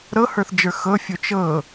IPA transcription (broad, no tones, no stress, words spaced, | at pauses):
ɾɤhə˞θd͡ʒə˞ xɤfʲo t͡ʃɤ